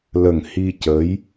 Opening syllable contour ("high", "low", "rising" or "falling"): low